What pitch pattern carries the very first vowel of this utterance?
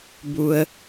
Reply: low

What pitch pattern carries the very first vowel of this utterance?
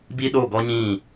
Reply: high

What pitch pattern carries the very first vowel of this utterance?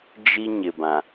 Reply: high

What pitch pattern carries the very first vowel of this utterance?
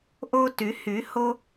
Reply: high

